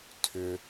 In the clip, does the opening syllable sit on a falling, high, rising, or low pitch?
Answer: low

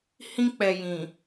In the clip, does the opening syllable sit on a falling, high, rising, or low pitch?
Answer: high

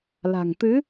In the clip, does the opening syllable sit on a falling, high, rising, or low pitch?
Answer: low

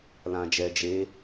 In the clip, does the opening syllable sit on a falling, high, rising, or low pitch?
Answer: low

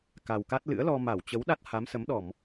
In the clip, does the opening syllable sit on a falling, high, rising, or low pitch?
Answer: low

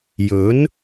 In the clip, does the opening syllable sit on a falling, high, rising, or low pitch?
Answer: rising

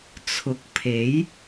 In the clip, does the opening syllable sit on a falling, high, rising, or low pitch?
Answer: low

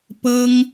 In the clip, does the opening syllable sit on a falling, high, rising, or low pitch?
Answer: high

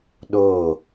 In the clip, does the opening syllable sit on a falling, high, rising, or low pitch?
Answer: falling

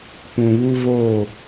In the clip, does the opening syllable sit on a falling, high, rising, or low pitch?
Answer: low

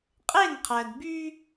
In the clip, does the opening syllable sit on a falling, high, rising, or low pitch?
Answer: falling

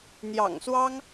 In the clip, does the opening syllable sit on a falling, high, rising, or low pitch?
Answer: low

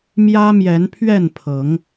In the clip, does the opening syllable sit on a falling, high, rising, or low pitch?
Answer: high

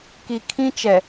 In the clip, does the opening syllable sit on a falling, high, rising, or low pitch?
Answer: low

